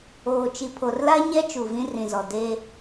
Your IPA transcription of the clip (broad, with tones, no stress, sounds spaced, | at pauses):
oː˨ t͡ʃ i˨ pʰ o˨ r l a˦ ɲ ɛ˦ t͡ʃ uː˨ v ĩ˦ r ĩ˨ z ɔ˨ d e˦